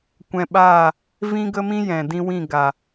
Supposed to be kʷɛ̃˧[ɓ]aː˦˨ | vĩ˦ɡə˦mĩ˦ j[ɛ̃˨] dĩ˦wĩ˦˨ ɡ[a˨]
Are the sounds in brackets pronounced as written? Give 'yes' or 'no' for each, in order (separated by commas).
yes, yes, yes